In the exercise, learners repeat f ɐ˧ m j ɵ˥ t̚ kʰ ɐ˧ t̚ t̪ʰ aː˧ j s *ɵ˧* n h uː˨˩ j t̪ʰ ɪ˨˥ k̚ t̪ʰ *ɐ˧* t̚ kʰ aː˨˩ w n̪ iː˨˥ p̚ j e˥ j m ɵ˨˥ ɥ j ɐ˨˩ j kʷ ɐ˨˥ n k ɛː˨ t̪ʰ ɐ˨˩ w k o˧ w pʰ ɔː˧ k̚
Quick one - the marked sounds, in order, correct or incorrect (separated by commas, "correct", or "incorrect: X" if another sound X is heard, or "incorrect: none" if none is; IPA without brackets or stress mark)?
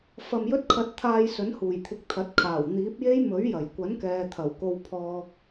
incorrect: ɵ˨˥, incorrect: ɐ˨˥